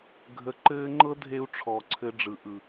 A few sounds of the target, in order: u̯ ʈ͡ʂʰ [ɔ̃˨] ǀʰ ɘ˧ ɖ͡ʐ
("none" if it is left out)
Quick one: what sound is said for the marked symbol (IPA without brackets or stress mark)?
ɔ˨